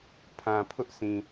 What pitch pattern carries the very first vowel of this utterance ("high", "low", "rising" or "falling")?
low